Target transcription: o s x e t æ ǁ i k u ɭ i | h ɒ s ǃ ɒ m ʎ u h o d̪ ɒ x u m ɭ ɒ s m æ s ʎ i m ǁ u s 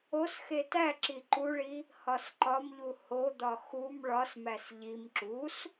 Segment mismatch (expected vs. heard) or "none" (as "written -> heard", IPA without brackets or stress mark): k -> ǃ